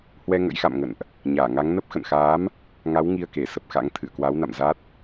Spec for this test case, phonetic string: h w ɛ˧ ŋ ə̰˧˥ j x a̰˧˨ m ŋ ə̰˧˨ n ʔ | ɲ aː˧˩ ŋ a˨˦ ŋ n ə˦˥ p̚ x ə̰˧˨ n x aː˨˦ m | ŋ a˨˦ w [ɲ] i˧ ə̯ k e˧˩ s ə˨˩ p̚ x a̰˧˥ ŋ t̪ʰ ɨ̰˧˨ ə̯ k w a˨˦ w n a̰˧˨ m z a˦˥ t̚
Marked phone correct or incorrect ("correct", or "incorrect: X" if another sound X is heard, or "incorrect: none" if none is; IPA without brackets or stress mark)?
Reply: incorrect: ŋ